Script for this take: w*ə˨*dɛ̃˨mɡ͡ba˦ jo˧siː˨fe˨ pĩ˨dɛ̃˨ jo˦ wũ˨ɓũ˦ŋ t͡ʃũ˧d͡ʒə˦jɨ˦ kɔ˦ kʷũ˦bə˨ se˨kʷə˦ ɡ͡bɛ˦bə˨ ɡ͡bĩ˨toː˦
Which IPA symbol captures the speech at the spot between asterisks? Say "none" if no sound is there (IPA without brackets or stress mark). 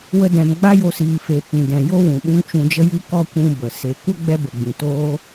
ə˧